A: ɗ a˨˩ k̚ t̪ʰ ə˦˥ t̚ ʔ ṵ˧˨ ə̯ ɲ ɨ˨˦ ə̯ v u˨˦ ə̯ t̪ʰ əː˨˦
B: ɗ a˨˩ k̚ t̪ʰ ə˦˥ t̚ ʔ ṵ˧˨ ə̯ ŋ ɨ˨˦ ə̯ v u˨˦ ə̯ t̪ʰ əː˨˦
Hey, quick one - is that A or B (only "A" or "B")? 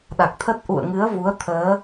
B